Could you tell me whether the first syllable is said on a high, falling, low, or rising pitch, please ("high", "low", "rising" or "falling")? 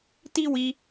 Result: high